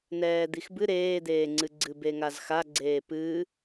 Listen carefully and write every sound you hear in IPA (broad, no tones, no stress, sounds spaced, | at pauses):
n ɛː d̪ i x b ɨ ɾ eː d̪ eː ŋ͡ǀ ɨ ɡ͡ǀ ɨ b e ŋ a z x a ɡ͡ǀ eː p ɨ